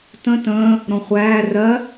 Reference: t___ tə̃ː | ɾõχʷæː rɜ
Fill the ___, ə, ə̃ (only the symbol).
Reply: ə̃